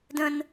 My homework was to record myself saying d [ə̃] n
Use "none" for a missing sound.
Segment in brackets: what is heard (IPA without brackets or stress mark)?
ə̃